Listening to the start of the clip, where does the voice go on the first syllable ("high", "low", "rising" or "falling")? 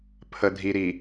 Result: low